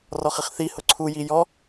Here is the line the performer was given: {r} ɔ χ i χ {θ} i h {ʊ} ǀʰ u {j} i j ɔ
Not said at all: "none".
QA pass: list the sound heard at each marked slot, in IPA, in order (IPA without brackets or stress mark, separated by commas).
r, θ, ʊ, j